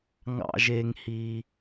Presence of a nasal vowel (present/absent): absent